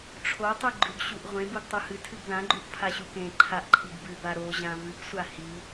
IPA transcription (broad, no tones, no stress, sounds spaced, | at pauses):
ʈ͡ʂʰ o tˤ ɨ ɡ͡ǃ ʉ ɡ ɕ u ʔ ʁʷ ẽ b u ɡ tˤ o h ɨ tʰ ɨ ɡ ð ã ɡ͡ǃ u ʔ pʰ a ɕ u k ẽ ǃʰ a ʔ ǃʰ i ɡ b ʉ b a ɾ o ʑ ã v ɨ ɡ sʷ a h i